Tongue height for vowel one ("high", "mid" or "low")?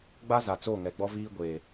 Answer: low